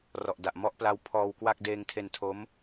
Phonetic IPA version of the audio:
r ɔ˨˩ ʔ d a˨˩ ʔ m ɔ˦˥ ʔ p l a˦˥ w pʰ ɔː˧ w k w a˥˩ k̚ d eː˧ ŋ tʰ e˧ n tʰ o˦˥ m

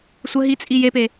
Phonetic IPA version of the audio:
sʷ ə ɦ i t͡sʼ i j e p e

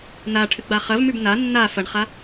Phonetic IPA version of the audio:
n a ʈʰ ɨ ɡ͡b a χ ɐ v m ʉ b n a nː a f ɐ ɳ χ a

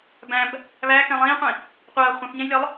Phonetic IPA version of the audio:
b æ̃ b | β æ k ɛ̃ lˠ ĩː qʷ ĩ | qʷ ɐː χʷ ɐ̃ θ ɲ ɛ̃ j lʲ ɒ lˠ

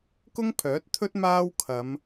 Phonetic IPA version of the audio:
k ʊ˥ ŋ pʰ œː˨˥ t̚ t̪ʰ ɵ˥ t̚ m aː˥ w kʰ ɐ˨˧ m

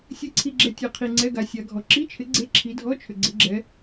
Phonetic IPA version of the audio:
sʲ ɨ˨˦ ǀʰ i˨ ɡ͡ǁ ɛ˨ tʲ ɛ˨ qʰ i˨ ŋ͡ǀ ɛ˧˥˧ ɡ a˨˦ sʲ a˨˦ ɡʱ ɔ˨ ǁ i˧˥˧ t͡ʃʰ ɪ˨˦ ɡ͡ǀ e˧˥˧ ǁʰ i˨˦ dʱ ɔ˧˥˧ t͡ʃʰ ʏ˨ ɡ͡ǀ ɪ˨˦ ɡ͡ǁ ɛ˨˦

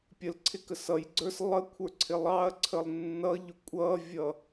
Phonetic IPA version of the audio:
pʲ ə l ǀʰ ɪ k ə s ʌ j ɡ͡ǀ ə˞ s lˠ ə kʷʰ ə˞ ǀʰ ɪ lˠ ɑ ɐ̯ ǀʰ ə lˠ nː ʌ ʎ ʊ kʷʼ ʌ vʲ ʌ

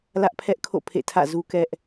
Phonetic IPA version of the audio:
l ä˦ ʔ pʰ ɛ˦ ʔ kʰ o̰˦˨ pʰ ḛ˦˨ tʰ ä̰˦˨ z u˦ k ɛ˦ ʔ

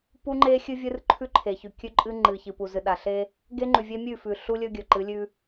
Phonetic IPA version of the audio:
p u˦ ŋ͡ǃ e˦ xʲ ɨ˦ vʲ ɨ˦ r ǃʰ ʉ˦ ǃʰ e˨ ç ʉ˨ kʲ ʉ˦ ǃʼ ɨ˦ ŋ͡ǃ ɨ˨ ç ɨ˨ p u˨ z ɨ˨ ɗ a˨ ɬ e˦ | ɡ e˦ ŋ͡ǃ ʉ˨ vʲ e˦ mʲ ʉ˦˨ f ʉ˨ ɬ u˦ lʲ ɵ˦ ɡʲ ɵ˨ ǃ ɨ˨˦ lʲ ʉ˦

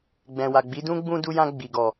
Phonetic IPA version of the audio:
ɡ͡b ɛ̃˨ w a˨ ɡ͡b i˨˦ d ũ˦ ɡ͡b ũ˧ d u˧ j ã˧ ɡ͡b i˨ ɡ ɔ˨

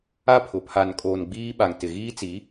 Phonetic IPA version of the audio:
a˦ pʰ ʊ˨ pʰ a˨ n kʼ oː˨ n ɡ͡b iː˦ ɓ a˨ ŋ t ɪ˨ ɣ iː˦ t͡s i˨˦

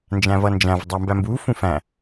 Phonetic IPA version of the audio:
n d͡ʒ æ̃ v ʌ n d͡ʒ æ̃ v dˤ æ m b æ m b u f ũ f æ̃

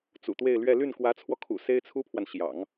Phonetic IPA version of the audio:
t͡s ṵ˨˩ t̪ w e˥˧ ɪ̯ l ɥ ɛ˥˧ l y˥˩ n k w ä˧˥ t͡sʰ w ɔ˧ kʰ ṵ˨˩ s e˥ ɪ̯ t͡sʰ u˥ pʰ w a˨ n ɕ j ɑ̰˨˩˦ ŋ

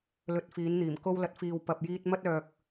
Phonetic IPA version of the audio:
l ɵ˨ t̚ f iː˨˧ n n̪ iː˨˩ m k o˧ w l ɐ˨ t̚ f iː˨ w p ɐ˨ p̚ j iː˧ t̚ m ɐ˧ t̚ œː˨ k̚

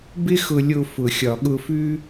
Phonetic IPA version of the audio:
b ɪ˦ x ʊ˧ lʲ o˧ f ʊ˨ xʲ ɒ˨ ɠ ʊ˧ f ʉ˦

